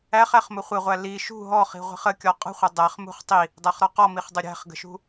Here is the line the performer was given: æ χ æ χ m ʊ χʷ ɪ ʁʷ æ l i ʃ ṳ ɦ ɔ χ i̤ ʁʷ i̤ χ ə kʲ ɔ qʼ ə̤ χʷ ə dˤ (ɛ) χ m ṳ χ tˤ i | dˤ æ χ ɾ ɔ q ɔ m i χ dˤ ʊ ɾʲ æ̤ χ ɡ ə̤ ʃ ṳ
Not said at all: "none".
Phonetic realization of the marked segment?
æ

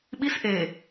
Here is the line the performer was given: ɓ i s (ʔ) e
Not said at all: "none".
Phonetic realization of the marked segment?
ʔ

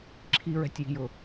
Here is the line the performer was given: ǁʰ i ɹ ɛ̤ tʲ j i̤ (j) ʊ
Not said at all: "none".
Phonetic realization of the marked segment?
j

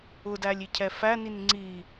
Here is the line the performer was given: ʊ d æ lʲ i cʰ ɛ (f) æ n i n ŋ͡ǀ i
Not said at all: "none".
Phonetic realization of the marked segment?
f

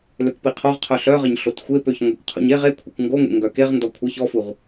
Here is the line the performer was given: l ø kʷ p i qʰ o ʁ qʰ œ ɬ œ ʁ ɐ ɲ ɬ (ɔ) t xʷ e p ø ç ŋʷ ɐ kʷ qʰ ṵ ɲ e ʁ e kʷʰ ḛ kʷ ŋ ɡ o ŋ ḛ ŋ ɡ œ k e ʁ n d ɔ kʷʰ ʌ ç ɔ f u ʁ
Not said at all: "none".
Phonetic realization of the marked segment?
o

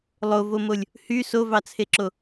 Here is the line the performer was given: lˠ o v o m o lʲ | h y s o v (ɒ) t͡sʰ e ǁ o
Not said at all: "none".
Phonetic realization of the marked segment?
ɑ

